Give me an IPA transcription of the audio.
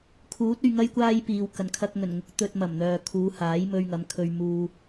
kʰ uː˨˥ t̚ ɵ˧ ɥ ŋ ɐ˥ j kʷ aː˥ j p iː˨ w k ɐ˨˩ n kʰ ɐ˧ k̚ ŋ ɵ˨˩ n ŋ ʊ˨˥ k̚ t̪ ɵ˧ t̚ m ɐ˨˩ m n̪ œː˨ kʰ uː˨˧ h aː˨˥ j m ɵ˧ ɥ ŋ ɐ˨˧ m kʰ ɵ˧ ɥ m uː˧

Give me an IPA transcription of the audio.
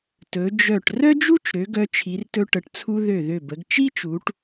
t ɵ˩˧ d͡ʒ œ˧˩ ʈ r œ˥ d͡ʒ u˥ t͡ʃ ɾ ø˩˧ ɡ œ˧ t͡ʃʰ i˩˧ r t ɵ˧ ʈ ə˩˧ ʈ t͡sʰ u˧ ð ø˧˩ ð ø˧˩ b ə˩˧ ɡ t͡ʃ i˥ t͡ʃ u˩˧ ʈ

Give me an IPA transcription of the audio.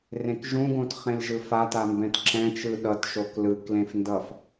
r ẽ k ʒ ũ ɡ õ t χ ẽ l ʒ ɯ f a t a m b ɛ̃ t ǁ ɛ̃ t͡ʃ ɯ ɗ ʌ t ʃ o k l ɯ k l ẽ f n d ʌ f

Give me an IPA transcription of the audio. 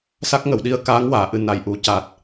s a˦˥ k̚ ŋ ə˨˩˨ w ɗ i˧˥ ə̯ k aː˧˥ ŋ w aː˨˩˨ ʔ ɨ˨˩˨ n a˨˩ j ʔ u˨˩˦ c a˨˩ t̚

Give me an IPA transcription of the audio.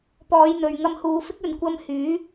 p ɔː˨˧ j n̪ ɵ˨ ɥ ŋ ɐ˧ m h uː˨˧ f ɪ˥ k̚ ɵ˨ n kʷ ɐ˧ m h yː˨˥

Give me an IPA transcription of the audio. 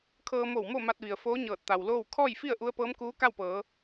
kʰ ɤː˧ m o˧˩ w m o˥˨ m a˧ t̚ ʋ i˩ ə̯ f oː˧˥ ɲ ɤː˧˩ t̚ t̪ a˩ w l oː˥˨ w kʰ ɔː˥˨ j f i˥˨ ə̯ ʔ u˧˥ ə̯ p ɤː˧˥ m k uː˧˥ k a˥˨ w p ɤː˩˧

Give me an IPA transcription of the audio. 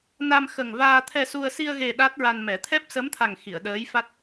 n a˧ m x ə˨˩ ŋ v aː˧ t̪ʰ ɛ˧ s u˧ ə̯ s i˧ ə̯ ɣ e˨˩ ɗ a˦˥ t̚ ɹ a˧ n m ɛ˨˩˦ t̪ʰ ɛ˦˥ p̚ s ə˧˥ m t̪ʰ a˨˩ ŋ x i˨˩˨ ə̯ ɗ əː˧˥ j f a˦˥ t̚

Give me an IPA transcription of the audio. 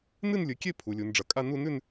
n ɨ˥˧ n lʲ ɨ˩˧ kʲ e˥˧ pʰ u˩˧ lʲ u˩˧ n ɖ͡ʐ ɐ˩˧ kʼ a˥˧ n u˥˧ n ʉ˥˧ n

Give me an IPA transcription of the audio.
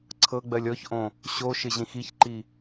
ǀʰ ɤ ɡ͡b ɜ lʲ ɔ ç ʔ õ | ɕ o ʃ ɪ ʑ ĩ x i ç ǃ i

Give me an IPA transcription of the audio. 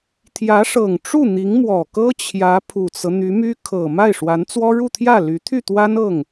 t̪ʰ j ä˧˥ ʂ ɤ˨˩ ŋ ʈ͡ʂ u˥˩ n̪ i˧˥ ŋ m w ɔ˨˩ k ɤ˥ t͡ɕʰ j ä˧˥ pʰ u˨˩ t͡s ɤ˦ n̪ y˧˥ m y˥ kʰ ɤ˨˩ m a˥˩ ɪ̯ ʂ w a˧˥ n t͡s w ɔ˥ ɻ u˥˧ t̪ʰ j ä˥˩ l y˧˥ t̪ʰ y˥˩ t̪ w a˥ n ɤ˥˩ ŋ

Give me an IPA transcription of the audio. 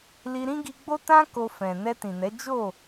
l i˧ ɾ ĩ˦ ɡ i˧ ɡ͡b o˦ t ã˦ k o˧ f ɛ̃˨ n ɛ˧ t ĩ˨ n ɛ˨˦ d͡ʒ o˦˨

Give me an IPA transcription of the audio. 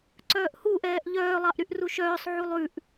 ǀ œː ʔ h u ʔ ɛː ʔ ʎ œː lˠ ɑ ʔ ɾ y ʔ r u ʃ œː sˤ ʕ u lˠ ʉ ʔ

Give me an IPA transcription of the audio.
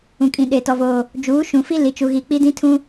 ũ˨ kʼ ĩ˨ ɗ e˨ t ɔ˨ v oː˨ | d͡ʒ uː˨˦ ʃ ũ˨ f i˦ l i˨ t͡ʃ u˨ ɣ i˨ k͡p i˦ d ĩ˦ tʰ ũ˦

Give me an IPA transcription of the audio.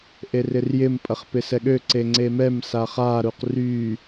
ʔ e r ɪ r j ɪ m pʼ ɐ χ p ɪ s ɛ ɠ ø ǀ e ŋ͡ǀ e m ɛ m s a χ a ɾ u q r y

